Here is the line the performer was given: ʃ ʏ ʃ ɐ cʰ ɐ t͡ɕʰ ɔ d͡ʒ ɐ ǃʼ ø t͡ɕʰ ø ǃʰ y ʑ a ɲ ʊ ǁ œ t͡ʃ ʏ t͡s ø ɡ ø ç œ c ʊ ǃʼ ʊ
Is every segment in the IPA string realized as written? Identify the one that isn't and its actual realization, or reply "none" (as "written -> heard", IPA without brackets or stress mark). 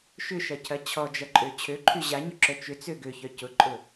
none